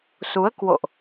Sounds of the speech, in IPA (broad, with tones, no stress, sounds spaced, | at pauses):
s u˨˦ ə̯ k w o̰˧˨ ʔ